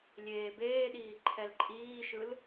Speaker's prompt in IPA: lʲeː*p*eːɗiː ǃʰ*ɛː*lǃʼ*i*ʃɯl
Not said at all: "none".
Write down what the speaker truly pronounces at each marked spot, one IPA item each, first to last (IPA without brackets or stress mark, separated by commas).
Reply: b, ɛ, iː